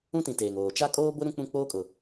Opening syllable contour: high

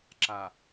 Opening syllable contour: low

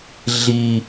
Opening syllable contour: low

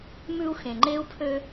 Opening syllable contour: high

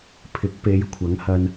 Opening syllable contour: rising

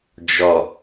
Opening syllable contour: low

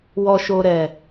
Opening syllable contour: low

